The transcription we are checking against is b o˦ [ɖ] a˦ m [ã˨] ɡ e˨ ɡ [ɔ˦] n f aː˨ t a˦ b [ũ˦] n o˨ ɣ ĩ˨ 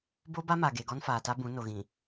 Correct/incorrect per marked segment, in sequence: incorrect: b, incorrect: a˨, correct, incorrect: ũ˨˦

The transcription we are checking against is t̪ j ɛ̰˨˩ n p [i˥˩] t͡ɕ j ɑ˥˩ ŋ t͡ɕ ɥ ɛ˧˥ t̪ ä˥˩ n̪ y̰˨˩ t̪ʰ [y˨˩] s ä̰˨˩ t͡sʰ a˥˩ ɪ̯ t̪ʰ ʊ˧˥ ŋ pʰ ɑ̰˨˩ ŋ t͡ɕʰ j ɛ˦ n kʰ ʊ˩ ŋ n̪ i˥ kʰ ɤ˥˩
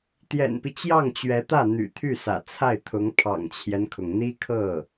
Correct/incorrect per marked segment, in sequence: incorrect: i˦, incorrect: y˥˩

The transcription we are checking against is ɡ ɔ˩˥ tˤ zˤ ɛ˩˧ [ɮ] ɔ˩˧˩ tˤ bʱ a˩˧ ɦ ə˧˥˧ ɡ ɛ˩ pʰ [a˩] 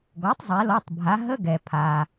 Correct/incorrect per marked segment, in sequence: incorrect: l, correct

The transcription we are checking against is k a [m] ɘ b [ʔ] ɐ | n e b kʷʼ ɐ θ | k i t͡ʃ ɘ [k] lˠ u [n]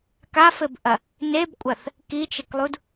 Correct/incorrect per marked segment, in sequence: incorrect: f, correct, correct, incorrect: d

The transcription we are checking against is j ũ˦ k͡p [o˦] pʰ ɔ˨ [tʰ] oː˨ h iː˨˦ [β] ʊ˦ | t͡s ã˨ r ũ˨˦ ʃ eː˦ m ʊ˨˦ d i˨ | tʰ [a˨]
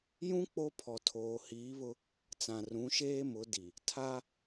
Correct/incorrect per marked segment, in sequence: correct, correct, correct, incorrect: a˦

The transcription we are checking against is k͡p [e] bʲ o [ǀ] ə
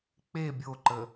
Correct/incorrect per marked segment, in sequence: correct, incorrect: ǃ

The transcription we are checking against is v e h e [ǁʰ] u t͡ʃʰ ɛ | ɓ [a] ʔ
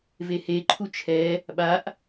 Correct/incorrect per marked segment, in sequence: incorrect: ǃʰ, correct

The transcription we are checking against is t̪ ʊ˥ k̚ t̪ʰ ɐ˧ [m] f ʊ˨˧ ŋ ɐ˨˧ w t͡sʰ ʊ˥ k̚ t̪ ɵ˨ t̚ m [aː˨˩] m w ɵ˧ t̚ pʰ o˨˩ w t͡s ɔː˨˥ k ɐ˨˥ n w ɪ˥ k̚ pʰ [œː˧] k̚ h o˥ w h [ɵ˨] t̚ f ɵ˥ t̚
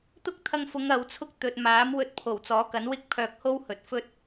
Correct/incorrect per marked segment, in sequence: incorrect: ŋ, incorrect: aː˨˥, correct, correct

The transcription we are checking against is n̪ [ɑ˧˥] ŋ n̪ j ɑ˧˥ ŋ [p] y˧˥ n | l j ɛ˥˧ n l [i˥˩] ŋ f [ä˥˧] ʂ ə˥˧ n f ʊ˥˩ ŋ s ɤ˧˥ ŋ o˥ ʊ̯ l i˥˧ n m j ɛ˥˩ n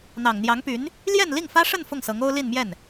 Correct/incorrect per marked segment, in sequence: incorrect: ɑ˨˩, correct, correct, incorrect: ä˥

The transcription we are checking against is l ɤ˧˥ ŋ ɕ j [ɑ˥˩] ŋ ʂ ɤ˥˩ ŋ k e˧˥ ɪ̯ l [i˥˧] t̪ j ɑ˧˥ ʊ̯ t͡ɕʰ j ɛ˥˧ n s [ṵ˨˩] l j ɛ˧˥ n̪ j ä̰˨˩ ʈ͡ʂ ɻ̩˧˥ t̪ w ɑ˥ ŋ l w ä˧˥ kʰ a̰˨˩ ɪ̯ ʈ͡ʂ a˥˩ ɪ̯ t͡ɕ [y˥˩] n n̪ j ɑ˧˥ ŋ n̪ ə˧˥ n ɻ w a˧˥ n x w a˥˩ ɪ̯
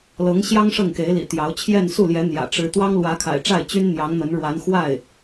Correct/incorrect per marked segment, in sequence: incorrect: ɑ˥, incorrect: ḭ˨˩, incorrect: u˥˩, incorrect: y˥

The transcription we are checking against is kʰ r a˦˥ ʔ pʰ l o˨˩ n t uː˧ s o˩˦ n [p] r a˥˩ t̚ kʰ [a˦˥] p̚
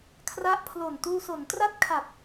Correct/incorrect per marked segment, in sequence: incorrect: t, incorrect: a˨˩

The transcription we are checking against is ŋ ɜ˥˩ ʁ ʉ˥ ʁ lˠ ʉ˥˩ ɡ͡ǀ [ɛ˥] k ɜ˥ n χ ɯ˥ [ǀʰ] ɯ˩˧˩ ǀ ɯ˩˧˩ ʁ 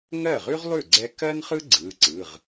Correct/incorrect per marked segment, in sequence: correct, incorrect: ɡ͡ǀ

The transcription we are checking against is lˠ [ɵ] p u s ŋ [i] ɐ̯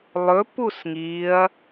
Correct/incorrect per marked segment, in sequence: correct, correct

